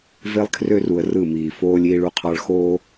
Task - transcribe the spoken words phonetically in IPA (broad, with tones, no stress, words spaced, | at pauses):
ve˦lˠkʰrø˦ru˨ə̯ rɯ˦˨miː˨ foː˦lʲ iː˦ɭu˦qʰɑ˦ɭ xoː˦